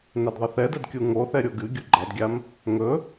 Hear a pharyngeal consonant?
no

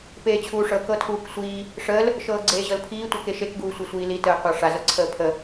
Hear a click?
yes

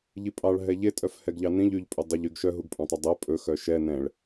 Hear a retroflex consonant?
yes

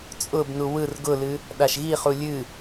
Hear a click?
no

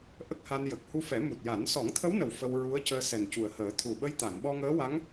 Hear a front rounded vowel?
no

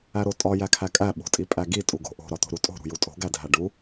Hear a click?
no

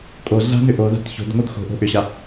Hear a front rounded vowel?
yes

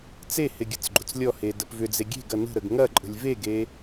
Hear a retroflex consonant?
no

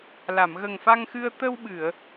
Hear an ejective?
no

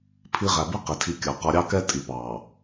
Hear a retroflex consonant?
no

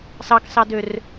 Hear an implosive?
no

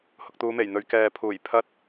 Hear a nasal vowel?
no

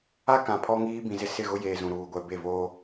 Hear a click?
no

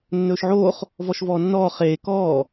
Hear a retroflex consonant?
no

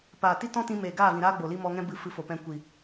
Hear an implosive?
no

